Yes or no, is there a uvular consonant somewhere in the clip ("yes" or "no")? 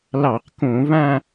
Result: yes